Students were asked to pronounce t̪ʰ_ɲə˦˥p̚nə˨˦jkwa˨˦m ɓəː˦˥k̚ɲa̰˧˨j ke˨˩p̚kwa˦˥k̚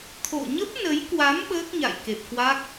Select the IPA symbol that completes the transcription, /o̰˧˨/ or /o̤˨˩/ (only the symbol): o̰˧˨